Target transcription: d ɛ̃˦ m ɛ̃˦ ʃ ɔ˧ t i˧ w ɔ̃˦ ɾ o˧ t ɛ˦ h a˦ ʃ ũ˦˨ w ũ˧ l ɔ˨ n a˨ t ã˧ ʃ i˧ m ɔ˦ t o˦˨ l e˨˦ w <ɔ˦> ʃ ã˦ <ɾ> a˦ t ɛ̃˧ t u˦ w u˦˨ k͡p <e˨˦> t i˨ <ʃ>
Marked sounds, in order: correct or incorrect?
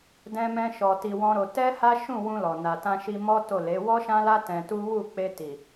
correct, incorrect: l, incorrect: e˧, incorrect: none

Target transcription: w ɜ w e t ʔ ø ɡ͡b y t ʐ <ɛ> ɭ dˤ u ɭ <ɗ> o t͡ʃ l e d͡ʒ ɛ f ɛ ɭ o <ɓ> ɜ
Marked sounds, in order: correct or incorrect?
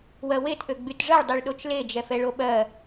incorrect: ɜ, correct, correct

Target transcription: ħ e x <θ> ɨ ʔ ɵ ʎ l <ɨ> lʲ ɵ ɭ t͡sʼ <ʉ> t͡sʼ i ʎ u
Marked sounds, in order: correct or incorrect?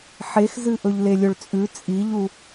incorrect: z, incorrect: e, correct

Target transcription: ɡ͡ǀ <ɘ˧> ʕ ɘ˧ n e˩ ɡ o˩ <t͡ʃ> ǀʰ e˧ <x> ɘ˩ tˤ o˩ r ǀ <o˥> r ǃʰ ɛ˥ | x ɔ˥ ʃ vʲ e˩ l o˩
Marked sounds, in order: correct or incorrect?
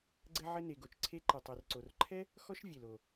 correct, correct, incorrect: ǃ, incorrect: o˩

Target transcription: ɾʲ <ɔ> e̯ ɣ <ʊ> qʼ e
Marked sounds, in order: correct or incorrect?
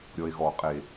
correct, incorrect: ɔ

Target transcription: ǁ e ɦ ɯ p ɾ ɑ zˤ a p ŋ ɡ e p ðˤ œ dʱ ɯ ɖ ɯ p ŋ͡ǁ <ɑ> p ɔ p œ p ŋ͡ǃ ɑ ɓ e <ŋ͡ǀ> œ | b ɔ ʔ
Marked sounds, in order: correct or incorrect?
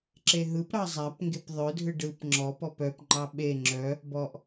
incorrect: ɔ, incorrect: ŋ͡ǁ

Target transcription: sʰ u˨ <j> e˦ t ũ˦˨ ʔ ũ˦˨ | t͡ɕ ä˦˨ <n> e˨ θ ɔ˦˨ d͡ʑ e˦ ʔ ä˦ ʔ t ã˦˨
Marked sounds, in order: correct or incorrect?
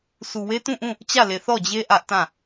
incorrect: w, incorrect: l

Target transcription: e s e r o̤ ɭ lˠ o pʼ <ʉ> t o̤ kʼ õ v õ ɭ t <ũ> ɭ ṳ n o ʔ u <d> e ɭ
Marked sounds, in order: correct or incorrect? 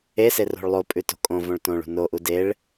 correct, incorrect: õ, correct

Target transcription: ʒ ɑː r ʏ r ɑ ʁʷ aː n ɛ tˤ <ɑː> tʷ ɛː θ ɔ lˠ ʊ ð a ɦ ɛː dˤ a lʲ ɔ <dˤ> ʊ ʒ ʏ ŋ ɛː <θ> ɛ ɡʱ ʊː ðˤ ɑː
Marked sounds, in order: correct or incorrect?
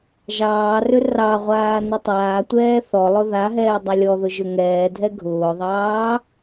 incorrect: aː, incorrect: ð, incorrect: dʱ

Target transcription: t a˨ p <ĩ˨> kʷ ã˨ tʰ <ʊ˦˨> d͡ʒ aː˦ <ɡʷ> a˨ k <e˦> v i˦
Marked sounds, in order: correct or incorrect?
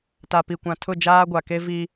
incorrect: i˨, correct, correct, correct

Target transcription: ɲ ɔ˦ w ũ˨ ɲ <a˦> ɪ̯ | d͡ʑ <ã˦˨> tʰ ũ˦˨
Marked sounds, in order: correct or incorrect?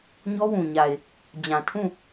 incorrect: a˨, incorrect: ã˨

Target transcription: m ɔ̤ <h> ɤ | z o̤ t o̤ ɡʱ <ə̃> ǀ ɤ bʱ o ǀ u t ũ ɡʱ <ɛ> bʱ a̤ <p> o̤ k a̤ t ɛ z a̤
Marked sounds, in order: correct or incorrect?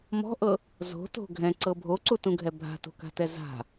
incorrect: ʔ, incorrect: ɛ̃, correct, incorrect: t

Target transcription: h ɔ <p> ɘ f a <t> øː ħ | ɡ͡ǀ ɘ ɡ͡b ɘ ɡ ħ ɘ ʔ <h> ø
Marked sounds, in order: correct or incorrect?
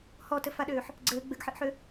incorrect: t, incorrect: ɗ, incorrect: ħ

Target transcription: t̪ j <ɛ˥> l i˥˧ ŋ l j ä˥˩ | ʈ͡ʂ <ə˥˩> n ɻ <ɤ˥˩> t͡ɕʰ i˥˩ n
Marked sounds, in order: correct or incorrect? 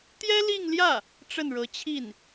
correct, correct, incorrect: ɤ˧˥

